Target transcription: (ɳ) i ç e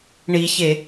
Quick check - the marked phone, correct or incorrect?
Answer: correct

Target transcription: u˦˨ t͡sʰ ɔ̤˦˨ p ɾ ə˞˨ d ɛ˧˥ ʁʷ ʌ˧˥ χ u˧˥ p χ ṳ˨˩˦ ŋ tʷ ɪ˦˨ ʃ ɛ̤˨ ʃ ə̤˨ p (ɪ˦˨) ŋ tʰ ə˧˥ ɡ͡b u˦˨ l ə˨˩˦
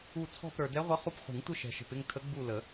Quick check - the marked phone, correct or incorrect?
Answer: correct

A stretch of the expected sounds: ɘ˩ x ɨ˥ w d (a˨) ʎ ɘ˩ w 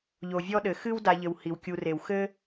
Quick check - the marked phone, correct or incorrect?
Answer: correct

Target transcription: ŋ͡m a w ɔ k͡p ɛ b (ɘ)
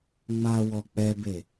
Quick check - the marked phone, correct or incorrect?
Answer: incorrect: e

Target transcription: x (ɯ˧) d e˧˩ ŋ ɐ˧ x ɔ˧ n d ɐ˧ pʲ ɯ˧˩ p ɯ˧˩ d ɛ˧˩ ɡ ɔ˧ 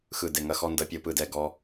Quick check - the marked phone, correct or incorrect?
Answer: incorrect: ɯ˧˩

